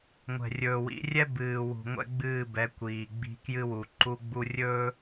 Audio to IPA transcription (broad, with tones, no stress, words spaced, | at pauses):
ŋʷɛ̤˨rʲɵː˨wḭ˨˦rʲɛ˦ bɨː˨wṳ˨ ŋʷɛ̰˦ɡ͡bɨː˦˨bɛ˨˦ kʷiː˨ɡ͡bi̤˦ kjɨ˦wu˨ ǃu˦ɡ͡bu˦ rʲɵː˦